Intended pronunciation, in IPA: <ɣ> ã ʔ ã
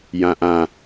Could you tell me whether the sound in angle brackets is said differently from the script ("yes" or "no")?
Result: yes